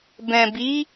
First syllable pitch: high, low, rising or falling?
low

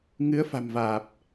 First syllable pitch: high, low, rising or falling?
rising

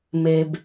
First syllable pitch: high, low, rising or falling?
low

